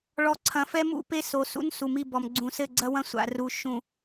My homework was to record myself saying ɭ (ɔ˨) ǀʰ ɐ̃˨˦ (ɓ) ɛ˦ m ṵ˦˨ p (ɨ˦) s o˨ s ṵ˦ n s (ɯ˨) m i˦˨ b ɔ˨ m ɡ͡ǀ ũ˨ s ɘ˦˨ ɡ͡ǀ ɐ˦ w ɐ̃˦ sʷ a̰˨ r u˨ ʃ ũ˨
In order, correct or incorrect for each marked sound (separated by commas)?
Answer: incorrect, incorrect, incorrect, incorrect